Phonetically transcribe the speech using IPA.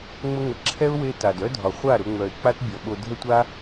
ŋ͡mə˧ ŋə˨ǁʰɛ˦ʊ̯ we˦ta˨d œ˦ dʱɒ˨χʷa˦˨ɾʊ˧ŋ͡mœ˨ɪ̯ k͡pa˦tbʲɔ˨ɓo˧ dʱə˦tʷa˦

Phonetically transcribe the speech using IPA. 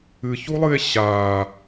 ɨçulˠɨe̯ ɕaː

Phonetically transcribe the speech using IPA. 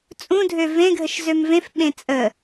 t͡sʼũdʱø vẽɡʱəʃ zømvẽfɓẽ t͡sʼə

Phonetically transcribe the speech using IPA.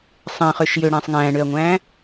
sˤẽχøʃ jøɽæ̃ːsˤ ŋæ̃ːɳøɐ̯ŋʷæ̃ː

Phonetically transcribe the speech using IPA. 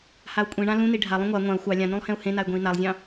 hau̯kʷʼĩɳã lũni ɖʱalˠũ ŋʷa ŋʷãu̯ xʷɑ lʲãnũlˠ hẽu̯hẽnay̯ ɡʷẽi̯nalˠzʲɑ̃

